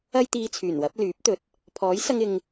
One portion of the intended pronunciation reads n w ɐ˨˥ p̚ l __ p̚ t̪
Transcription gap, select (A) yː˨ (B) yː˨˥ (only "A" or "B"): B